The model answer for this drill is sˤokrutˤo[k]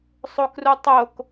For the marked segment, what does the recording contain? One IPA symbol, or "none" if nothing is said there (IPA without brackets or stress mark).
k